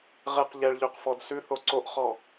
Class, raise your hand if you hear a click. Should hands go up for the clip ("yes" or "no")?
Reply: yes